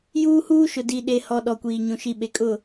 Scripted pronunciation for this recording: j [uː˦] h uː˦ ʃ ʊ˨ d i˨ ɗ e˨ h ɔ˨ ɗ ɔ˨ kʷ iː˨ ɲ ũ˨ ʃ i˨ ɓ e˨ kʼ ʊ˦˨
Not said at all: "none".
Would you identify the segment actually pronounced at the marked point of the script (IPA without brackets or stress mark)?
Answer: uː˦